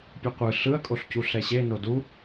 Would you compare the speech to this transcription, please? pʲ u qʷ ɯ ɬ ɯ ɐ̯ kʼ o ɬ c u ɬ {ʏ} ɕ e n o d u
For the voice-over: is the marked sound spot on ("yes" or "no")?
no